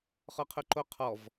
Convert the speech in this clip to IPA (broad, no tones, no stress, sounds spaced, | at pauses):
χ ɔ qʰ ʊ ǃ o qʰ ɔ v